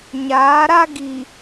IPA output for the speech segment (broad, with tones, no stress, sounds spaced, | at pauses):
ɲ aː˨˦ ɾ a˦ ɡ i˨